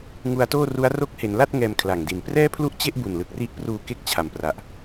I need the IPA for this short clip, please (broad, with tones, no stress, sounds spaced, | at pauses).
ŋ u˧ a̯ t oː˥˩ r u˦˥ a̯ r o˦˥ k̚ h e˩˦ n l a˥˩ t̚ ŋ ɛː˧ m kʰ l a˨˩ ŋ d i˨˩ n p r ɛː˥˩ pʰ l u˥˩ ʔ t͡ɕ e˥˩ ʔ b u˨˩ n l ɯ˨˩ k̚ r i˦˥ ʔ p r uː˧ k e˥˩ k̚ t͡ɕʰ a˨˩ m p r a˨˩ ʔ